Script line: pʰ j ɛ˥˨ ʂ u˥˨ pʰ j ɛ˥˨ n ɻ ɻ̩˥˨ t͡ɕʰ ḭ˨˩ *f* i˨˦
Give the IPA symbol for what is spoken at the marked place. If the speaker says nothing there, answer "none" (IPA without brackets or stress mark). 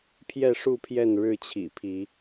pʰ